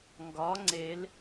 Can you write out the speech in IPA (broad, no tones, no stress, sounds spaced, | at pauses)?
ŋ ɡ ɒ ŋ͡ǀ e l